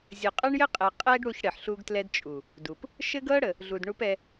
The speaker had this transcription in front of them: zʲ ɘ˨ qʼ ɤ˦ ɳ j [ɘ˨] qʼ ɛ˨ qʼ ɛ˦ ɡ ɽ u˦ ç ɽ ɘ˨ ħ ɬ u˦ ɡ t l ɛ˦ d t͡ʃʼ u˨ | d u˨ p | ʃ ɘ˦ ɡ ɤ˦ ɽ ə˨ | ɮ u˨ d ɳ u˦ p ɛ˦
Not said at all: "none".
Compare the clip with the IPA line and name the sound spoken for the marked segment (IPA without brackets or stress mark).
ɘ˦